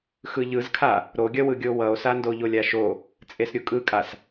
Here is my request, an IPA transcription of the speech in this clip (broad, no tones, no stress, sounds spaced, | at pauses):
x ɯ ʎ ɯ z kʰ a | ɾ o ɡʲ ʌ w ɯ ɡʲ o w ʌ o̯ s a n d o ʎ o lʲ a ʃ o | t͡sʼ e s ɾʲ u kʼ ɯ kʼ a s